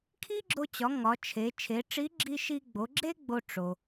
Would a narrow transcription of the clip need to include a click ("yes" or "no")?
yes